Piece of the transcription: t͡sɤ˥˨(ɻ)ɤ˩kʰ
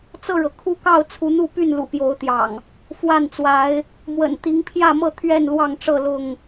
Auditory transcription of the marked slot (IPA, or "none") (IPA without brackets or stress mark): ɻ